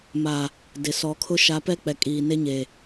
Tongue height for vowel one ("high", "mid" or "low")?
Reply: low